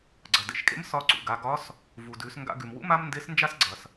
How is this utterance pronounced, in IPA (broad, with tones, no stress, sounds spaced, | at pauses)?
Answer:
ɡ͡ǀ ɐ˩ d ḛ˩ ʃ kʼ ḛ˧˥ m s ɒ˧ ǀ ṵ˩ ɡ a˩˧ ɡ ɒ˧˥ s | v u˩ d ʉ˩˧ s ŋ ɡ a̰˧ ɡ ʉ˩ m w ṵ˧˥ m a˥ m n d e˧˥ s n d͡ʒ a˥ s ɡ͡ǀ ɐ˩ s